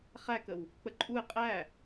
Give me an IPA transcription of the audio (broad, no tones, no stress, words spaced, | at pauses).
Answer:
χækəw | k͡pəǃʼuɪ̯ qʼæ